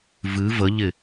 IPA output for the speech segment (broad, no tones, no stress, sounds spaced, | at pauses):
v ɨ v ə ʎ ɪ